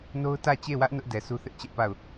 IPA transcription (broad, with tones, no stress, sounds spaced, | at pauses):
n o˦ ʊ̯ t ä˦˨ t͡ɕ e˦˨ w ä˦ ʔ n ʊ˦ ʔ d ɛ˨ s u˦ θ ɪ˦ ʔ t͡ɕ ɛ˦ ʔ p a˦˨ ʊ̯